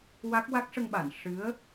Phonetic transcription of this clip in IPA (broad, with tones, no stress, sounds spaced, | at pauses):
w a˦˥ k̚ w a˦˥ k̚ ʂ ə˧ ŋ ɓ a˨˩˨ n ʂ ɨ˧˥ ə̯